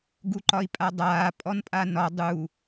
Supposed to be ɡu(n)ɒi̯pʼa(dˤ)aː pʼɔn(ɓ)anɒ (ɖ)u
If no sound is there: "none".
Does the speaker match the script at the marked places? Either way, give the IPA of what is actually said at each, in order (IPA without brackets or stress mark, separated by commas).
ǃ, dˤ, pʼ, dˤ